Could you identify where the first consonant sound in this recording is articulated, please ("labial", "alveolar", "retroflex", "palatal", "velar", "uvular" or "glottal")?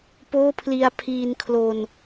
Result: labial